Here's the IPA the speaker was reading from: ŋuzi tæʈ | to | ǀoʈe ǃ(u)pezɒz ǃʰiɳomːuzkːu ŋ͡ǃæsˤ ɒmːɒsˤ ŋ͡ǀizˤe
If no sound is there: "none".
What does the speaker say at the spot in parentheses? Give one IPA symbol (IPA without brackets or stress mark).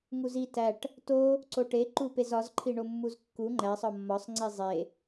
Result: u